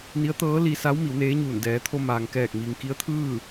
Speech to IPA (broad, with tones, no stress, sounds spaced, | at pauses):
n i˧˥ ə̯ t̪ ɤː˧˥ l i˧ s a˧˥ w m i˩˧ w n eː˧˥ ɲ uː˧˩ n d ɛː˩˧ t̪ʰ o˧ m aː˩ ŋ k ɛː˧˩ k̚ m iː˩ ŋ k i˧˥ ə̯ t̪ʰ ɯː˥˨